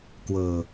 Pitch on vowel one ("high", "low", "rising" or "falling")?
low